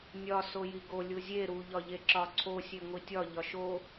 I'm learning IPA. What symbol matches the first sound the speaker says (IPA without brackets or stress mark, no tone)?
nʲ